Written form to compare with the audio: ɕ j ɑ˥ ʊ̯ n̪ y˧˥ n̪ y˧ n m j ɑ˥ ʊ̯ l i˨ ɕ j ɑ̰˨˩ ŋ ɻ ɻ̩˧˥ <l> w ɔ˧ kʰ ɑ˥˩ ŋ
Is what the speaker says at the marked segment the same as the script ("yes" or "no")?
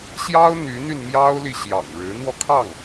no